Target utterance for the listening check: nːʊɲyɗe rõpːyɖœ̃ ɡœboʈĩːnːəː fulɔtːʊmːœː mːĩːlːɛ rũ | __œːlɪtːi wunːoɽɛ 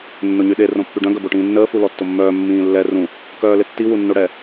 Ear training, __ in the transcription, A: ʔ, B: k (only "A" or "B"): B